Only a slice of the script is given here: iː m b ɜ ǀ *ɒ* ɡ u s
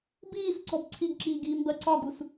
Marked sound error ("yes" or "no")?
no